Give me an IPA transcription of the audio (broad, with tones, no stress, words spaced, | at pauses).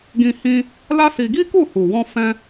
ɡĩ˧ hĩ˧ | la˦si˧ ɡi˦ku˦˨hu˨wɔ̃˧ fɛ̃˦